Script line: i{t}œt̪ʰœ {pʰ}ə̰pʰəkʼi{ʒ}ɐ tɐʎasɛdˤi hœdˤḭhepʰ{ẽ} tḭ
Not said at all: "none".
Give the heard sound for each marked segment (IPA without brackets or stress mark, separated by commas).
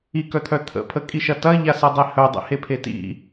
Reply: k, t̪ʰ, ʃ, e